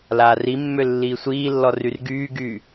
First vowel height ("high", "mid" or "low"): low